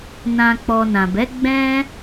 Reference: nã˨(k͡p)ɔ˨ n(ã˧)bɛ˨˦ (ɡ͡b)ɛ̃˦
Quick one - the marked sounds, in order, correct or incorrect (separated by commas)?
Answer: correct, incorrect, correct